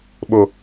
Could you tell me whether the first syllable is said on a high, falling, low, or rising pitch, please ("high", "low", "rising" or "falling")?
low